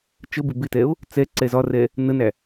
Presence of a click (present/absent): present